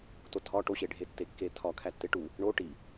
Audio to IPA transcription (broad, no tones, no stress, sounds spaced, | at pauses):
t o tʰ ɒ ʈ o ɕ e ɖʱ e tː e kː e tʰ ɒ kʰ æ tː e ʈ u | ɳ o ʈ i